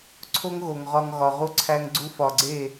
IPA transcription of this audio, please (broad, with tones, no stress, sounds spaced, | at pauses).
ǀʰ o˦ ŋ ɣ o˨ ŋ ʁ ɒ˧ ŋ ɣ ɒ˨ ʁ u˦ ǀʰ æ˦ ŋ ɡ͡ǀ u˦ f ɒ˨ ɡ͡ǀ e˦˨